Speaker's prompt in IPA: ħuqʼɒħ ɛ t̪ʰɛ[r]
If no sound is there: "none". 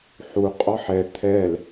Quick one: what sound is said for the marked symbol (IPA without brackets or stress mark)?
l